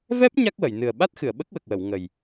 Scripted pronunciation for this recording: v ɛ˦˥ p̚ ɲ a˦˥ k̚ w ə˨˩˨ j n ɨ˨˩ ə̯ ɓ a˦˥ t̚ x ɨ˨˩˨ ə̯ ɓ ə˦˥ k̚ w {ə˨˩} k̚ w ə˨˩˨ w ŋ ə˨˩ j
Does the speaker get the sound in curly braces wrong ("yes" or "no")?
no